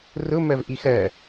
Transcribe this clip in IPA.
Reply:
r ʊ m ɜ v ʔ i x ɜ

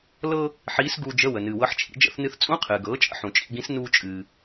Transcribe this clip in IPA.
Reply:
l ɤ˧ | ħ iː˧˥ s ɡ uː˧ d͡ʒ ə˧˥˧ w ə˩ n ɨː˩ w ɤ˧˥ ħ t͡ʃʰ ḭ˩˥ d͡ʒ ə̰˧˥˧ θ n ɨ˧ θ t͡sʼ ũ˧˥˧ qʰ ɨː˩ ɡ ɤː˩˥ t͡ʃʼ ə̰˧˥ ħ ũ˩ t͡ʃʼ ḭ˧ ɡ ĩ˧˥ s n uː˧ t͡ʃʼ ɨː˩

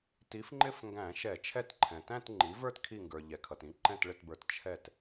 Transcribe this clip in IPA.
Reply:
t i˩˥ f ŋ͡ǃ ɪ˥˧ f ŋ ɡ æ̃˧˩˧ ʃ ɛ˧˩˧ t͡ʃʰ ɛ˥˧ t ǃʰ ɛ̃˩ t æ̃˥˧ t ŋ͡ǃ i˩˥ v ə˞˥˧ t kʰ i˧˩ ŋ ɡ ə˞˩ ʎ ɛ˩ kʰ ʌ˩ t ĩ˩˥ ǃ ɛ̃˧˩ t ɭ ɪ˧˩ t b ə˞˩ t t͡ʃʰ ɛ˧˩ t

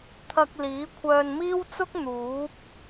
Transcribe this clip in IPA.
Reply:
t̪ʰ ɐ˧ k̚ l iː˨˥ kʷʰ œː˧ n m iː˥ w t͡s ʊ˥ k̚ n̪ uː˨˥ p̚

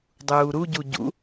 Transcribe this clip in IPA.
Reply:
dˤ uː ɾ u ɟ u ɟ ṵ

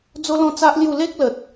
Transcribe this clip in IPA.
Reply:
d͡z o˦ l ɔ̃˥˧ t͡s a˦ ʔ l j u˥˧ l e˦ k̚ l ə˨ t̚

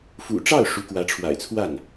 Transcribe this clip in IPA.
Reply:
f ṵ˨˩ ʈ͡ʂ ɑ˥˩ ʊ̯ ʂ u˧˥ k w ä˧˥ ʈ͡ʂʰ w a̰˨˩ ɪ̯ t͡sʰ w a˥˩ n

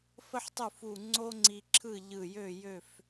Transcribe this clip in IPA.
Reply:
f ə˥ ħ tˤ u˥˨ f u˧˩ ŋ͡ǀ o˥ ŋ͡ǀ i˧ ǁʰ ɯ˥˨ ʎ ɯ˧˩ j ø˥˨ j ø˥˨ f

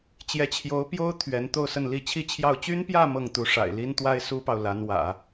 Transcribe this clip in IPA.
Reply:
t͡ɕ j ɛ˧˥ t͡ɕʰ j o˧˥ ʊ̯ p j o˥ ʊ̯ t̪ʰ ɥ ɛ˧˥ n t̪ o˥˧ ʊ̯ s ə˥˧ n l i˥˩ t͡ɕʰ i˥ t͡ɕʰ j ɑ˥˩ ʊ̯ t͡ɕ y˥ n p j ä˥˧ m ɤ˥˩ ŋ t̪ u˧˥ ʂ a̰˨˩ ɪ̯ l i˥ n t̪ w a˥ ɪ̯ s u˥ p ɑ˨ ʊ̯ l a˧˥ n w ä̰˨˩˦

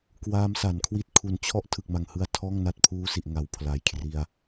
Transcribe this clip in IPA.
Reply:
k w aː˦˥ m s a˩˦ n kʰ w i˥˩ t̚ kʰ u˩˦ n t͡ɕʰ ɔ˦˥ ʔ tʰ ɯ˨˩ k̚ m a˨˩ ŋ h ɯ˧ a̯ tʰ ɔː˥˩ ŋ n a˥˩ t̚ pʰ uː˦˥ s i˨˩ ʔ ŋ a˨˩ w pʰ l a˨˩ j kʰ r i˧ a̯

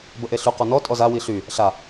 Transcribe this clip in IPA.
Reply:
b ə ʔ e ɬ y q ɔ n ɔ tʼ ɔ z a w i ɬ y | ɬ a

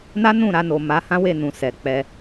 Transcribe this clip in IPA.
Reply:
n a˦ n ũ˦˨ ɾ a˧ n o˨ m a˨˦ h ã˦ w e˦˨ n ũ˨ s ɛ˨ k͡p ɛ˧

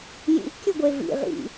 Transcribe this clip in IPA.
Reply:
j ḭ ʔ kʲ ɘ ɡʷ e v ḭ ʁ ḭ

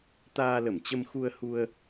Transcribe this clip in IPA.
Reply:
t̪ aː˧ l ə˧˩ m t͡ɕ ə˧ m x u˧ ə̯ h u˧ ə̯

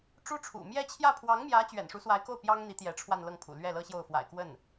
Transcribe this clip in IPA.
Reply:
ʈ͡ʂ u˥ ʈ͡ʂʰ ṵ˨˩ m j ɛ˥˧ t͡ɕʰ j ä˥˩ pʰ w ɑ˧˥ ŋ m j ä˧˥ t͡ɕ ɥ ɛ̰˨˩ n ʂ u˧˥ s w a˧˥ ɪ̯ k o˥˩ ʊ̯ p j ɑ˥ ŋ n̪ i˧˥ t̪ j ɛ˧˥ ʈ͡ʂʰ w a˥˧ n l ɤ˥˩ ŋ pʰ ṵ˨˩ l ɥ ɛ˥˩ l ɤ˥ ɕ j o˥˩ ʊ̯ f w a̰˨˩ ɪ̯ k w ə˥˩ n

